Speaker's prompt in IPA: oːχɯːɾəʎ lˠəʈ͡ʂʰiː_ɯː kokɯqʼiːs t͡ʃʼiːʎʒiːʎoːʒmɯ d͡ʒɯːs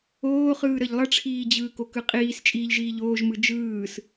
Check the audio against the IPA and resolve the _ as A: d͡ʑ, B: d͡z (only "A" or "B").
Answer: A